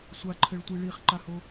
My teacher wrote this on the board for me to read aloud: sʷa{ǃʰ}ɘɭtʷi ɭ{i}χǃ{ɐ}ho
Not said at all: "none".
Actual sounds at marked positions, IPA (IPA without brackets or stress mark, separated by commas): ǃʰ, i, a